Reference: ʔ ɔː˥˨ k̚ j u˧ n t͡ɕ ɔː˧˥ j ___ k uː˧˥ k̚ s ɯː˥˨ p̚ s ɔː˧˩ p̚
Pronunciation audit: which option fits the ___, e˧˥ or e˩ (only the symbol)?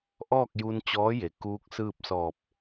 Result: e˩